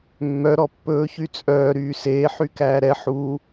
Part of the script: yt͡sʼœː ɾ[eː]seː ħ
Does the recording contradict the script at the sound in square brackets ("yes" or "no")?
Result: yes